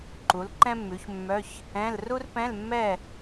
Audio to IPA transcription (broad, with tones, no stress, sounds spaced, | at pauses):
ǃ u˩˥ l ǃ ɛ̃˥ mː ʉ˩˥ ç mː œ˧˥˧ ç | ɛ̃˧˥˧ l r u˥ r p ɛ̃˧˥˧ l mː ɛ˥˨